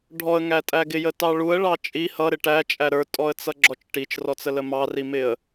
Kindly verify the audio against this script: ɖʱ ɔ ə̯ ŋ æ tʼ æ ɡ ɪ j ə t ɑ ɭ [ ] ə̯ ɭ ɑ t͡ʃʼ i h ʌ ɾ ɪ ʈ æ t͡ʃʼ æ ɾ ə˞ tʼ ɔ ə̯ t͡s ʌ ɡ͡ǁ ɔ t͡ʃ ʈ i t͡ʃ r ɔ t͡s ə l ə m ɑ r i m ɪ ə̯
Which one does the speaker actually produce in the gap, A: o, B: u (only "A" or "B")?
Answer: B